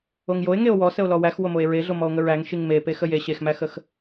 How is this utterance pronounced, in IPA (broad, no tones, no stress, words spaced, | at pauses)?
oŋjoe̯ŋeo̯ wɔ səo̯lɔwæx womoe̯ɹeɮo mɔo̯ŋəɹæŋ ʃiŋme pexəje ɕexmæxəx